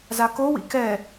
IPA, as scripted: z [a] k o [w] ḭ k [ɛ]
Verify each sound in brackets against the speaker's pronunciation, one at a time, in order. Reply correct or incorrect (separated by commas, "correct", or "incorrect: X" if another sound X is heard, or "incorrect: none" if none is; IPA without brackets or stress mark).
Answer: correct, correct, correct